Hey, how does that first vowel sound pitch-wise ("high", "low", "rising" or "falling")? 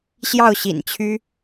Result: falling